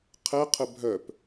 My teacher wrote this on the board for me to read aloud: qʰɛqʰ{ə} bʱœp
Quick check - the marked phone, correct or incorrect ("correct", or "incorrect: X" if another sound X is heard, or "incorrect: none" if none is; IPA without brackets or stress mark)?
correct